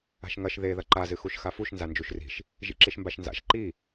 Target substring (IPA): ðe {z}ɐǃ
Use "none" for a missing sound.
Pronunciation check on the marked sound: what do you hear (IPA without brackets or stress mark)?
ð